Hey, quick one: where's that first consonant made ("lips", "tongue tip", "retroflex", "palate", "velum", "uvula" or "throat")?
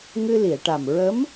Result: velum